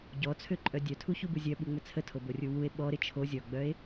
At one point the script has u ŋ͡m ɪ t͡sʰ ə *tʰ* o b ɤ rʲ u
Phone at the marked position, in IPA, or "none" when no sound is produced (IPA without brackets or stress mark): tʰ